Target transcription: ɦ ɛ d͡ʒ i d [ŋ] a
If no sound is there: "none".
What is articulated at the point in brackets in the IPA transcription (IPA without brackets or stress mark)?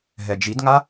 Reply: ŋ